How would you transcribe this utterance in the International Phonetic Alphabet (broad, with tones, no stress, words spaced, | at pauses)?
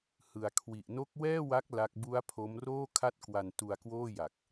hɯ˩˦a̯kʰwi˨˩ʔ no˦˥k̚wɛː˥˩wa˦˥k̚ la˦˥k̚ bu˦˥a̯pʰo˦˥mroː˥˩ kʰa˥˩t̚kwa˧n tu˧a̯kwoː˥˩ja˨˩k̚